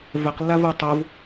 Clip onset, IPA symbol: v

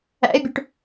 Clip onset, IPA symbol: æ̰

